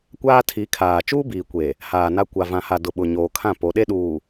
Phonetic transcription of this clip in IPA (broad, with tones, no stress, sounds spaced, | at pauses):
kʷ aː˦ tʰ i˨˦ kʰ aː˨ t͡ʃ uː˦ b iː˨ kʷ e˨ | h aː˨ n a˦ kʷ a˨ v ã˨ h a˨ d ʊ˨ ɓ ʊ˨ ɲ oː˨ kʰ ã˦˨ p o˨˦ ɗ e˦ ɗ uː˨